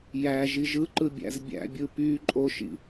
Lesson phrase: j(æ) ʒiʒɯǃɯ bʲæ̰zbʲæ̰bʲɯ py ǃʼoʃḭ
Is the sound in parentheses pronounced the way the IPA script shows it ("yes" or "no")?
yes